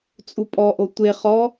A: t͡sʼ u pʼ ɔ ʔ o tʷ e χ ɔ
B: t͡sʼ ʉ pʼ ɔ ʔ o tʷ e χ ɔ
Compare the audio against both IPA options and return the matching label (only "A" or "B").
A